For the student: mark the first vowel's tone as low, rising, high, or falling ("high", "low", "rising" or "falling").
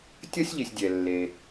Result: high